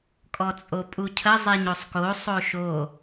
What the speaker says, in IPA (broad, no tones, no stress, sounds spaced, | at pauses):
kʼ ɔ t͡sʼ o pʼ u cʰ ə zˤ e ɲ o sˤ k o sˤ o ʃ o